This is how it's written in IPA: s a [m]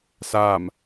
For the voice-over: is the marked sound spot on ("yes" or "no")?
yes